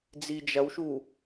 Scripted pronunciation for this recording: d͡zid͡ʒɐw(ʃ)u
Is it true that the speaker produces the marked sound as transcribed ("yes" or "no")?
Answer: yes